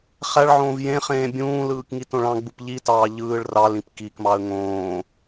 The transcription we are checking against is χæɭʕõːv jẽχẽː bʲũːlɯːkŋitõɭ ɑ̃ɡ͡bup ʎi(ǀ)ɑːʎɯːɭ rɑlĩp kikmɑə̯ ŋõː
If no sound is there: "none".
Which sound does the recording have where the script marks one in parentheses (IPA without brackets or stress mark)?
t